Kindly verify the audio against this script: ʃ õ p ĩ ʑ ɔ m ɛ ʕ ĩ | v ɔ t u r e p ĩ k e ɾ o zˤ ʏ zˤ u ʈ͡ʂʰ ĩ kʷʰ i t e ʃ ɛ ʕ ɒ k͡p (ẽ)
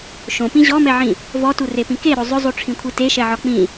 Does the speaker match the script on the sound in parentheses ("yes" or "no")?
no